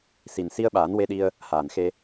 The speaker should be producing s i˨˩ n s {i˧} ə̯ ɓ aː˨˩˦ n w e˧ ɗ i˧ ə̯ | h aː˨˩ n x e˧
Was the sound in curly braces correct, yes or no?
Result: yes